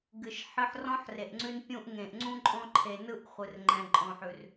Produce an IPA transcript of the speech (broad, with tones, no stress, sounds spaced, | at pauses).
ɡ ɨ˨ ʃ ħ ɨ˧ ħ r ɔ̃˦ ħ r e˨ ʔ ŋ͡ǀ ʉ˧ n pʲ ũ˧ ʔ ŋ ẽ˨ ʔ ŋ͡ǀ ũ˧ ǃʼ ɔ̃˧ ǃʰ e˨ n ɯ˧ ʔ χʷ ɨ˨ r ŋ͡ǃ ɛ̃˨ ǃʼ ɔ̃˨ ħ ʉ˨ r